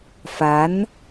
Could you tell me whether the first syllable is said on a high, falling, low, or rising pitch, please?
rising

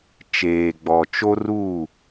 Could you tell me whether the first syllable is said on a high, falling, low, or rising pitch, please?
low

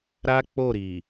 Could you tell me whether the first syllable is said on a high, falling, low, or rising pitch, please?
high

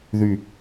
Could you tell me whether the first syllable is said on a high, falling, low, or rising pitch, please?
low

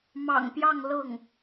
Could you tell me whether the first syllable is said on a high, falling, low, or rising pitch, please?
low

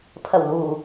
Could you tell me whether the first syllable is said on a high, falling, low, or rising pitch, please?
low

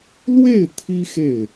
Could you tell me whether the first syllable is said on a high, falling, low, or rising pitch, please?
falling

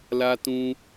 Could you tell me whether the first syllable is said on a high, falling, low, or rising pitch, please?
high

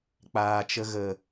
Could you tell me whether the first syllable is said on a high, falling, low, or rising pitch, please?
low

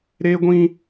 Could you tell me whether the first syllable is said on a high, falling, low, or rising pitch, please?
high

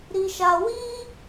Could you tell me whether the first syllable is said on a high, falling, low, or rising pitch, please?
high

